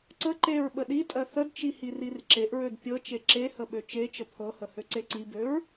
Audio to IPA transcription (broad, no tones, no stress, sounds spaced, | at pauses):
ǀ ə ǃ e ɹ ɓ ə ɗ i tʼ ɜ θ ə d t͡ʃ i h i r i r ǁ e ʔ ɹ ø d pʲ ɤ t͡ʃ e ǁ e h ə ɓ ø t͡ʃ e t͡ʃ ə pʰ ɤ h ə h ø ǀ e ǀ i b ø ɹ